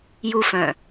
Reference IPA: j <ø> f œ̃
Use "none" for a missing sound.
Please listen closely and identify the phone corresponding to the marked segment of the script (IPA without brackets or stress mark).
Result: u